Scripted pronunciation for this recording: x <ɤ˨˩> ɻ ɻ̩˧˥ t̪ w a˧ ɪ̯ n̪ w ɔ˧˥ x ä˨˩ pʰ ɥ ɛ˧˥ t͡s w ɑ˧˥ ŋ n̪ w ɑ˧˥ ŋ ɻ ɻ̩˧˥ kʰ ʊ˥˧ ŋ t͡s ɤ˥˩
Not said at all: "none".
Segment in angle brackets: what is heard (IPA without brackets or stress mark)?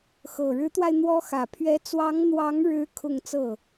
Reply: ɤ˨˩